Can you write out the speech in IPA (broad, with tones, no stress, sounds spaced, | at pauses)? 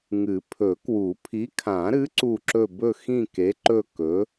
ŋ ɨ˨˩˦ pʰ ɵ˨˩˦ k w u˨˩˦ pʰ i˨˥ kʰ ã˨˩˦ ɾ ɨ˨˥ ǀ u˦˨ ǁ ɵ˦˨ b ɵ˦˨ x ĩ˦˨ k e˨˥ ǃ ɵ˦˨ k ɵ˨˥